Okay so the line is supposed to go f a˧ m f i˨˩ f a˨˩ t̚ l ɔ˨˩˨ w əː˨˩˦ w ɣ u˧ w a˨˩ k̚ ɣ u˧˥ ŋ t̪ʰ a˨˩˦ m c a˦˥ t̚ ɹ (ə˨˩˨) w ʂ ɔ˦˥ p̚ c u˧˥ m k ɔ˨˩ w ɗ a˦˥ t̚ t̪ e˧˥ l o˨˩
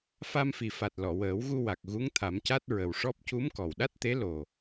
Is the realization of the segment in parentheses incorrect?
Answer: yes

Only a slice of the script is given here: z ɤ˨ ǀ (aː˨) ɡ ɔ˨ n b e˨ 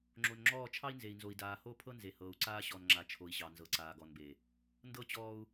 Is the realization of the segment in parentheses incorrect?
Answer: no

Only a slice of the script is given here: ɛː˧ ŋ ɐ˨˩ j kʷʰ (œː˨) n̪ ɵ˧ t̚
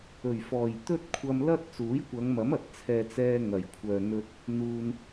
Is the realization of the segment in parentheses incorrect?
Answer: no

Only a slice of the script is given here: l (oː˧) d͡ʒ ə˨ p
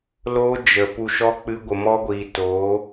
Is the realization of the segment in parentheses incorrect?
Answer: no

